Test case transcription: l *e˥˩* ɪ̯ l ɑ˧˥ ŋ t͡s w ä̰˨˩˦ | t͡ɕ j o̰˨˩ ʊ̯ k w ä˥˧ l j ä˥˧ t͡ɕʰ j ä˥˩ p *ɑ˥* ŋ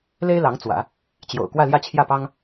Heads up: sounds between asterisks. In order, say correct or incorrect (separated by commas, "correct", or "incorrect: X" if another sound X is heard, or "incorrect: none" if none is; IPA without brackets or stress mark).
incorrect: e˥, correct